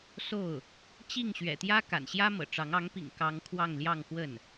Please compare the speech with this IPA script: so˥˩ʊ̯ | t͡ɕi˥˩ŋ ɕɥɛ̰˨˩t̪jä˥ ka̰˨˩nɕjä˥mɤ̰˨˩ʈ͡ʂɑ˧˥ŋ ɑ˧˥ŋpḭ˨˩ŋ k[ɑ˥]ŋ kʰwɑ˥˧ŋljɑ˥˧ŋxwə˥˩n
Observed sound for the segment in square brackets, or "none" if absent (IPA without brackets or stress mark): ɑ˥